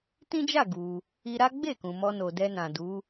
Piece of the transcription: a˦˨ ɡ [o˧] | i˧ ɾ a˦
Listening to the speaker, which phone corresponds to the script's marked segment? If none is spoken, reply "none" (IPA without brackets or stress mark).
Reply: u˧